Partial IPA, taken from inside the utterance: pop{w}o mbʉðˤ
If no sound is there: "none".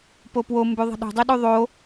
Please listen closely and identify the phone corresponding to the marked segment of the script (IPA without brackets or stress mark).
w